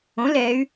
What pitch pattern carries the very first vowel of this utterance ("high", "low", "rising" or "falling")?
rising